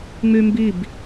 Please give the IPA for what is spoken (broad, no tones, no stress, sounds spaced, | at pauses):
ŋ͡m y m b i b